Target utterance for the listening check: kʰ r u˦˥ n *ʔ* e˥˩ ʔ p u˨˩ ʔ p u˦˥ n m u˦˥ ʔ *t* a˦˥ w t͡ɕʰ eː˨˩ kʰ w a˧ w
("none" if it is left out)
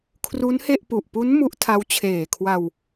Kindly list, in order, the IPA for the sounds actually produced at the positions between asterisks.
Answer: h, tʰ

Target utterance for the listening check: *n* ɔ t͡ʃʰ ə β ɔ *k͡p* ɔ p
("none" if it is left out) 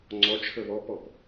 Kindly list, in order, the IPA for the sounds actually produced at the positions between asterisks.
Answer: ŋ͡ǀ, p

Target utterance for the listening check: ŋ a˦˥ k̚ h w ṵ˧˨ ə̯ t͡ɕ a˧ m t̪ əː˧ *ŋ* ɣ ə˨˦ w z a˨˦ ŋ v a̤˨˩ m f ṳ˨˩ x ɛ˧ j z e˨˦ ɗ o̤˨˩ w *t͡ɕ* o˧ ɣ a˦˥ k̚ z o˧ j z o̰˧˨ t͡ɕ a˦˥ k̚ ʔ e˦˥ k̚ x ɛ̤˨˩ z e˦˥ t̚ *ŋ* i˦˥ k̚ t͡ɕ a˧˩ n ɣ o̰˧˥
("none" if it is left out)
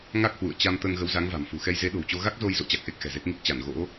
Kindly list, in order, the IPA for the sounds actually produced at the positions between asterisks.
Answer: ŋ, t͡ɕ, ŋ

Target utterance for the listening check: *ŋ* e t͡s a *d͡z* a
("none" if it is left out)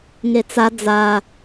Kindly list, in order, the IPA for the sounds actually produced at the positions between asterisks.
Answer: ŋ, d͡z

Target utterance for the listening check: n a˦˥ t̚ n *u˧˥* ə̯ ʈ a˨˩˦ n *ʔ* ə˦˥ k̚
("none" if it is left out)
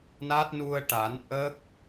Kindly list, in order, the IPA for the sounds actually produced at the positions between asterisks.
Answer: u˧, ʔ

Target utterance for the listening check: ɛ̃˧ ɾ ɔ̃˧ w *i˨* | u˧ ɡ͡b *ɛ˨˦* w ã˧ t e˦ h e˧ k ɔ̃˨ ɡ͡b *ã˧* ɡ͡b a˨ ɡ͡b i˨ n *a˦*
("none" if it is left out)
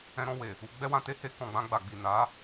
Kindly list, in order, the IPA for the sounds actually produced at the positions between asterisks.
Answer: e˨, ɛ˦, ã˧, a˨˦

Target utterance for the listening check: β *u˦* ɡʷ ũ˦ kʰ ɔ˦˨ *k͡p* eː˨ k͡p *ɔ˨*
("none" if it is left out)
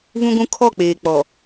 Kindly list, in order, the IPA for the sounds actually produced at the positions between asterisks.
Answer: ũ˦, k͡p, ɔ˨

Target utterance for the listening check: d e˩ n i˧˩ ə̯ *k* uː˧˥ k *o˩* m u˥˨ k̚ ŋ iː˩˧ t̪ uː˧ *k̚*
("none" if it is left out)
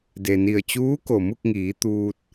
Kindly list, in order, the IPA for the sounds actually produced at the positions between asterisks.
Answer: t͡ɕ, o˩, t̚

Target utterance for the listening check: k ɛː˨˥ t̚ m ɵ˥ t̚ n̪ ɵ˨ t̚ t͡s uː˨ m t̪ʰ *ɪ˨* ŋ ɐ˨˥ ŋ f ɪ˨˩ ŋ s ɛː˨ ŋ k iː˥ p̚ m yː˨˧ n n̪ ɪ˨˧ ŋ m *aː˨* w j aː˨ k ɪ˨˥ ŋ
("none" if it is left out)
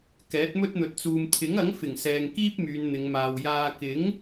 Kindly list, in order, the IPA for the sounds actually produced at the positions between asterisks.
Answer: ɪ˨˥, aː˨

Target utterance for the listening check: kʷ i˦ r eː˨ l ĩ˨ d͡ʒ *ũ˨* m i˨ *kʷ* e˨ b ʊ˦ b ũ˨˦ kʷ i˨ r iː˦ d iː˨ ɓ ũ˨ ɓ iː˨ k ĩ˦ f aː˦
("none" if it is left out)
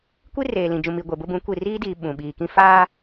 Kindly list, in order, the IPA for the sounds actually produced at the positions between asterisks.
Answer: ũ˨, ɡʷ

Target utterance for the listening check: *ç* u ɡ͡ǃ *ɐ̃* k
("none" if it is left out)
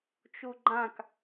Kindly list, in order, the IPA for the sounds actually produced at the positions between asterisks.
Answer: t͡ʃ, ã

